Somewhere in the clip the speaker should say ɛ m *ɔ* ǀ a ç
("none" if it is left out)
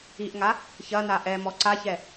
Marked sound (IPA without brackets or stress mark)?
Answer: ɔ